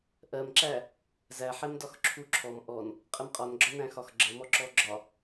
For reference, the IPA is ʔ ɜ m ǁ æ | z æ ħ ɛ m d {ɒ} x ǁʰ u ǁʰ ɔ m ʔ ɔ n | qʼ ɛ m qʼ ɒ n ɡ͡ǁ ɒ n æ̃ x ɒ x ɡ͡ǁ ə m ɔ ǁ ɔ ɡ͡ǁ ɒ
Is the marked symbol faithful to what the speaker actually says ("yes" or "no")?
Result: yes